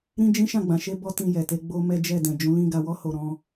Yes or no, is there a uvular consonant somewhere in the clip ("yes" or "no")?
no